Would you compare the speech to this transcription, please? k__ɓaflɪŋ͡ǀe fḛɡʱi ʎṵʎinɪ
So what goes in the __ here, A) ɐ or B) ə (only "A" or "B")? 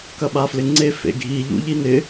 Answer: A